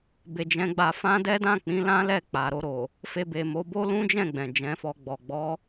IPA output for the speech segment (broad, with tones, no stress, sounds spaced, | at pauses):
b e˨ d͡ʒ ɛ̃˨˦ ɡ͡b a˧ f ã˦ d ɛ˦ d ã˦˨ k͡p ĩ˨˦ l ã˦ l ɛ˦˨ k͡p a˨ ɾ o˧ ɾ o˨ | f e˧ b e˨ m o˨˦ b o˦ l ũ˦ d͡ʒ ɛ̃˦˨ ɡ͡b ɛ̃˨ d͡ʒ ɛ̃˨˦ f ɔ˧ ɡ͡b ɔ˨ ɡ͡b ɔ˨˦